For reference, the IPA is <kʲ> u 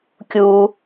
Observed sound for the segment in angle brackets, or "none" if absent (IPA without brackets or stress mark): kʲ